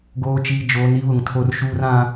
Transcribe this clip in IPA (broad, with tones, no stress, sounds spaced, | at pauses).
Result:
ɡ oː˨ t͡ʃ iː˨ d͡ʒ oː˨˦ n i˦ β ʊ˨ ŋ tʰ o˦ r ʃ uː˦ r ã˦